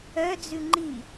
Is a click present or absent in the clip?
present